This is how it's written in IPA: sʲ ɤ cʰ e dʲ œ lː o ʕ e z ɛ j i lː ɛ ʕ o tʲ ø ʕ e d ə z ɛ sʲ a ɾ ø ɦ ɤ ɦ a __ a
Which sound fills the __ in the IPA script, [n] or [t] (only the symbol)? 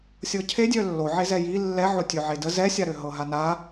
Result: n